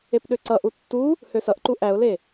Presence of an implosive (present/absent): present